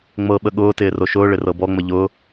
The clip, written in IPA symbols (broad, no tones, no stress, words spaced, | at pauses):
ŋ͡mɤɓə ɠʊːtɪː roʃʊːɭɪ rɤbɔŋ͡mə ʎʊː